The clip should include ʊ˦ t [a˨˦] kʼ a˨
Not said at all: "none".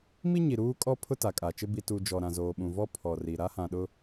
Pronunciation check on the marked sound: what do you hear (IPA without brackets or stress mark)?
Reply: a˨